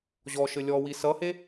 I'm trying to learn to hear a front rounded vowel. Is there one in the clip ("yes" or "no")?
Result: no